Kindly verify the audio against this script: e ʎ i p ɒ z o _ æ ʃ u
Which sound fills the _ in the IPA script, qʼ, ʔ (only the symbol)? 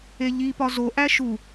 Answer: ʔ